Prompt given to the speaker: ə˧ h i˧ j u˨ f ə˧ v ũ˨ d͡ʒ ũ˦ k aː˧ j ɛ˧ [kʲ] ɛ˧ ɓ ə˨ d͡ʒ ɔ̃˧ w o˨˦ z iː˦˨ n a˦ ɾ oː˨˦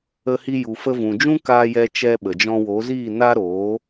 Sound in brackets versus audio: incorrect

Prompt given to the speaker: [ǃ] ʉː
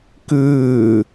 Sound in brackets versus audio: incorrect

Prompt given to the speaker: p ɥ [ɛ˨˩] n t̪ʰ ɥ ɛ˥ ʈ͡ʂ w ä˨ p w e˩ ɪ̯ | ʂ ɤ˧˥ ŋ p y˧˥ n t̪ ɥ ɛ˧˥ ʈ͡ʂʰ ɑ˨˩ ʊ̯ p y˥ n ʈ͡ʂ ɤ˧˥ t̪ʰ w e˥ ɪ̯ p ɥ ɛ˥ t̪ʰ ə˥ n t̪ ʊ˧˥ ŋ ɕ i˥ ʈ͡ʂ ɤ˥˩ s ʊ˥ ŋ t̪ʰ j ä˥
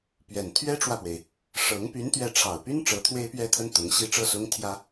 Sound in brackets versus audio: correct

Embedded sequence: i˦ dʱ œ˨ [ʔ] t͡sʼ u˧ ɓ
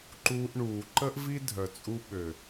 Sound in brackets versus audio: incorrect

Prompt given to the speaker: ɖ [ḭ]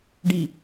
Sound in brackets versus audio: incorrect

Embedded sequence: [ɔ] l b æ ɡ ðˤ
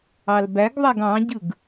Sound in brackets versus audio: incorrect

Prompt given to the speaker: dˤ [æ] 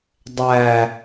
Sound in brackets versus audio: correct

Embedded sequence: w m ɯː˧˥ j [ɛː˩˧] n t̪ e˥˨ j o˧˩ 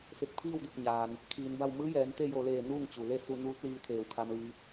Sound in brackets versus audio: correct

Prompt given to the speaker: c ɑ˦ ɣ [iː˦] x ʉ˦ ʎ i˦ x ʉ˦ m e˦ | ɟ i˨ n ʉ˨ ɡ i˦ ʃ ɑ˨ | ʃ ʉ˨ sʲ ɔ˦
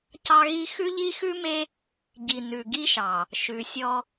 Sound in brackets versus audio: incorrect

